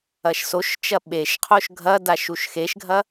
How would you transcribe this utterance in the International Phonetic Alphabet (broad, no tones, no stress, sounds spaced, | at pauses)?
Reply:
ɐ ʃ s o ʃ t͡ʃ ɐ ɓ e ʃ qʰ o ʃ ɡʱ ɐ d a ʃ u ʃ x e ʃ ɡʱ ɐ